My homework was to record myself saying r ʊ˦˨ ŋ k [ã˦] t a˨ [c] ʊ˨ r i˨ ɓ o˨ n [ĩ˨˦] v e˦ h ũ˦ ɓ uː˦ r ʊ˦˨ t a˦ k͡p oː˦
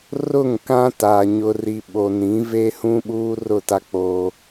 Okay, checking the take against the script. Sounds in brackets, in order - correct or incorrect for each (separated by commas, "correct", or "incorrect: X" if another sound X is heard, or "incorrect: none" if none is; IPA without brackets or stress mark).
correct, incorrect: ɲ, correct